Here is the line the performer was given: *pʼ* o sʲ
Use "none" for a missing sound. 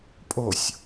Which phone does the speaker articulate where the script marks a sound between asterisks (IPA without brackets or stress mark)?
pʼ